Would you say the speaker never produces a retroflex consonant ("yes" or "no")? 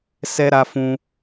yes